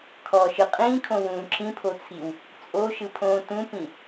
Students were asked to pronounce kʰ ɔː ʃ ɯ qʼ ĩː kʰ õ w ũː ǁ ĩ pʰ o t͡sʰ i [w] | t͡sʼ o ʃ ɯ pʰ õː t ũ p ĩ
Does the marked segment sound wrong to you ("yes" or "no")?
no